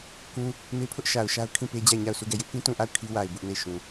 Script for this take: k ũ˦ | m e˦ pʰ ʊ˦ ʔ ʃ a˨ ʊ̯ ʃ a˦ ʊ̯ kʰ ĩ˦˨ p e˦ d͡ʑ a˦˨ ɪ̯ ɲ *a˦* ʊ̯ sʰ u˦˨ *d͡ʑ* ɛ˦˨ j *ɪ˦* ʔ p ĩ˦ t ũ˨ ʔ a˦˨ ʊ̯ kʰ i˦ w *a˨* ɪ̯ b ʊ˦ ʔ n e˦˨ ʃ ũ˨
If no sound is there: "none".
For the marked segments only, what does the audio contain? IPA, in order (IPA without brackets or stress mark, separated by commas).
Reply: a˦˨, ɡ, ɪ˦, a˨